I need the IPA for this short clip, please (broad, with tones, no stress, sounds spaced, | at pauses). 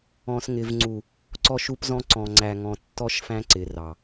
ɔ̃˨ s ŋ ɪ˨ v ŋ͡ǀ u˨ | ǀ ɔ˦ ʃ u˦ p z ɔ̃˦ ǀ ɔ̃˨ ŋ͡ǀ æ˨ ŋ ɔ̃˨ tː ɔ˦ ʃ f æ̃˦ ǀ ɪ˨ r ɑ˨